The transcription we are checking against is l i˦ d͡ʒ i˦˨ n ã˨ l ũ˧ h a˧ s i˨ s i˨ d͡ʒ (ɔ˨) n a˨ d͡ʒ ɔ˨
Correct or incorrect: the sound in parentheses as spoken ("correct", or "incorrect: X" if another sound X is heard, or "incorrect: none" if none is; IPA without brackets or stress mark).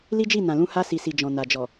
incorrect: ɔ̃˨